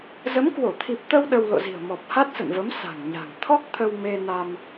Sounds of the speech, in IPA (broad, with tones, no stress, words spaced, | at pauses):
zə˨˦mkwo˧˩t̪ʰi˨˩p̚t̪ə˧w ɗə˧w lo̰˧˨zi̤˨˩ə̯ mɔ˨˩p̚ha˦˥t̚sə̰˧˨nvə˨˦m sa̤˨˩ŋɲa̤˨˩ŋ t̪ʰɔ˦˥k̚t̪ʰə˧w me˧na˧m